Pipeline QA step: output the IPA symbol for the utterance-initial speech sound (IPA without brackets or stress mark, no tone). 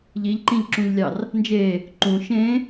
ʎ